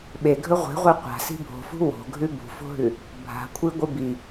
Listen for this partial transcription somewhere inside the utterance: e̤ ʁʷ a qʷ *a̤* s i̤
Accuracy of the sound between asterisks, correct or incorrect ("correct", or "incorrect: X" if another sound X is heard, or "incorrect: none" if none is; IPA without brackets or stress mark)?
correct